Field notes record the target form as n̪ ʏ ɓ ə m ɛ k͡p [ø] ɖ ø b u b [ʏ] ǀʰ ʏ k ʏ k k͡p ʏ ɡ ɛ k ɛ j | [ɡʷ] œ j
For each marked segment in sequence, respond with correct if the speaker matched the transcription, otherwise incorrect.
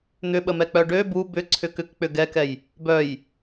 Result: incorrect, correct, incorrect

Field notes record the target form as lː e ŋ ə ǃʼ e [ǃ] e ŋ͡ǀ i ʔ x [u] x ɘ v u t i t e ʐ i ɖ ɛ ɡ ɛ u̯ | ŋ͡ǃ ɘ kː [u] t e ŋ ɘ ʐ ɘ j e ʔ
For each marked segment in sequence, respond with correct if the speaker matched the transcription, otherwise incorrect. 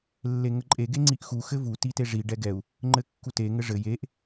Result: incorrect, correct, correct

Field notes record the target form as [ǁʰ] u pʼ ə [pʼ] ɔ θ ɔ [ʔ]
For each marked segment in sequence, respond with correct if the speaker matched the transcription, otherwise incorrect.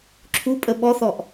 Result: correct, incorrect, correct

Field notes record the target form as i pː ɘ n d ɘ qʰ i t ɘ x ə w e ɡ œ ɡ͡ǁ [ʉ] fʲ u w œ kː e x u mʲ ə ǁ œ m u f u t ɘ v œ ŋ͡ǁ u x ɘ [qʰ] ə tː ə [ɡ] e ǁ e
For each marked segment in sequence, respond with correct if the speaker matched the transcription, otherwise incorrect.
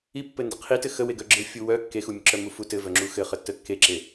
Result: incorrect, incorrect, incorrect

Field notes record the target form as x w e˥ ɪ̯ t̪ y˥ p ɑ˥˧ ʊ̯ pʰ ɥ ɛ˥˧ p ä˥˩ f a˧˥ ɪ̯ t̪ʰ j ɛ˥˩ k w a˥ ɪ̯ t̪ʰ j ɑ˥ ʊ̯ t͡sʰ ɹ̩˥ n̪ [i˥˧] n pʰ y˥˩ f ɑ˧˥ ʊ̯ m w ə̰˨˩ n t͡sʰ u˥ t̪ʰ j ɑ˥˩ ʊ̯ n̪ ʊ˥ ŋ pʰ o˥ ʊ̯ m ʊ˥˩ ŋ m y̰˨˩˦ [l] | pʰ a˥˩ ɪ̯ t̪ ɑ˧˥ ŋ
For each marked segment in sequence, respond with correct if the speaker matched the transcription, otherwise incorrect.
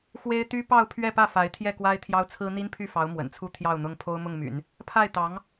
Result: incorrect, incorrect

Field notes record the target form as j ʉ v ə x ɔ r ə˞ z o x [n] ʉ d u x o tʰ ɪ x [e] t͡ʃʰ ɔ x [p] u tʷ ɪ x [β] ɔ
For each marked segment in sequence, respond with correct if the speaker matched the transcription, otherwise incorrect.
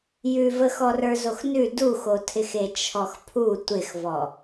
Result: correct, correct, incorrect, incorrect

